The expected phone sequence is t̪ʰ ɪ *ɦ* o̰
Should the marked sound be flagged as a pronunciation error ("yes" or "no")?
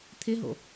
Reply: no